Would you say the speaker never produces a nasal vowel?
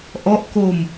yes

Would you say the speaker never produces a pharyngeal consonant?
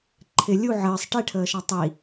no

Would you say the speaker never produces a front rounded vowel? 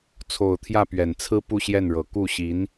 yes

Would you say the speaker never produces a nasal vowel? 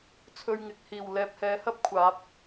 yes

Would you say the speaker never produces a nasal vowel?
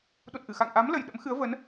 yes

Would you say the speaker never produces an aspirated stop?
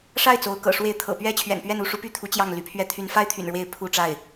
no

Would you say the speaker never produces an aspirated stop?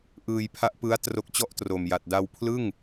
no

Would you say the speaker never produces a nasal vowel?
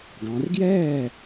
no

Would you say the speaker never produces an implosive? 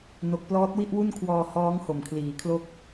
yes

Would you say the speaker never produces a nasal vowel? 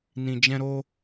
no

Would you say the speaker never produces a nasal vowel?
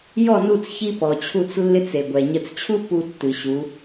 yes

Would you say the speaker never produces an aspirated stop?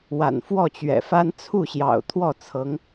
no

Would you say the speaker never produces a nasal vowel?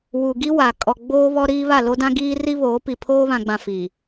no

